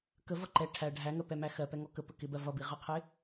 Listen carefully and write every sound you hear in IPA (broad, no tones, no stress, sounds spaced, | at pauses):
k ə v ʌ ǃ ɛ ʈʰ æ ɖʱ æ ŋ ɜ p ɛ m æ x ɜ p ɛ ŋ ɔ k ə p ə k ɪ b ɜ v ʌ b i ʁ ɜ qʰ ɪ